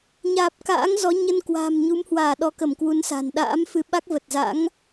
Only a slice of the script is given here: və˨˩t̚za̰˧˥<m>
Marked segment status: incorrect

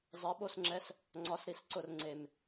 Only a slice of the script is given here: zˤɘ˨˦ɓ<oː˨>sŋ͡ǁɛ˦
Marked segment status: incorrect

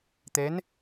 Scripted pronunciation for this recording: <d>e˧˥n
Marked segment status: incorrect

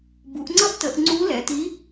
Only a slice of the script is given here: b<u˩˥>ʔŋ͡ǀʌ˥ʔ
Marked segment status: correct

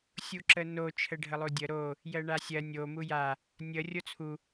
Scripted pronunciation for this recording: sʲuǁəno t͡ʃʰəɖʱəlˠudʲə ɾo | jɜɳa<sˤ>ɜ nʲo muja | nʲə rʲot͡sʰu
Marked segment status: incorrect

